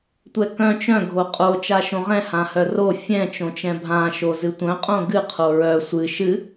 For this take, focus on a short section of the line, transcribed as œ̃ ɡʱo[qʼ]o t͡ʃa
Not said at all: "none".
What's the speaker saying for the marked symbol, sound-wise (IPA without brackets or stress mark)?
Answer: qʼ